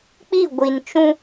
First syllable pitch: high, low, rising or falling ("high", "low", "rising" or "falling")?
falling